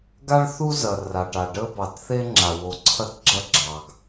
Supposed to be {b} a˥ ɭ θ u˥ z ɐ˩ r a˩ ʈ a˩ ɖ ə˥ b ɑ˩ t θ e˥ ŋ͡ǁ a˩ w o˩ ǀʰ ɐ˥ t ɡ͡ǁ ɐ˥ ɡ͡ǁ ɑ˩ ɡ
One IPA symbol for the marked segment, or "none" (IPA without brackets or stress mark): ɡ